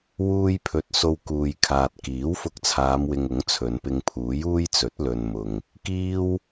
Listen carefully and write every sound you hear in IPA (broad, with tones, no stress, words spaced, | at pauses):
wuː˧jpʰɵ˨t̚ so˧wkuː˨jkʰaː˨t̚ kiː˨˥w fʊ˧k̚t͡sʰaː˨˧mwɪ˨ŋ ʊ˨˥ŋt͡sʰɵ˨˧npɪ˧ŋ pʰuː˨˥juː˥jt͡sɵ˨˥t̚ lɵ˨nmʊ˨ŋ | kiː˥w